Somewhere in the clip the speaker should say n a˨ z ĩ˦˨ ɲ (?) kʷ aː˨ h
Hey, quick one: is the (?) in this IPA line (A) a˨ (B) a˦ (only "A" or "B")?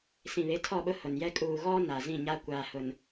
B